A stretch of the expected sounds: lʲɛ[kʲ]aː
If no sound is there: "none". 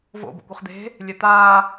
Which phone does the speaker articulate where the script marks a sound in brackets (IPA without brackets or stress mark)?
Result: t̪